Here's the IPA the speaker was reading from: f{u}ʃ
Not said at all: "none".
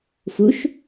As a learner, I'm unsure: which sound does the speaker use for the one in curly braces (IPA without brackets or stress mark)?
u